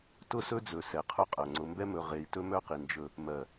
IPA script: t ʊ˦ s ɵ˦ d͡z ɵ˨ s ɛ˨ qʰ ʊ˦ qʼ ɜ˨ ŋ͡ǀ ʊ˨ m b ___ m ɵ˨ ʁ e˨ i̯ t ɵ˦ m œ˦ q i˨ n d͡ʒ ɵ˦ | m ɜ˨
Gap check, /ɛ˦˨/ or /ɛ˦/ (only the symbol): ɛ˦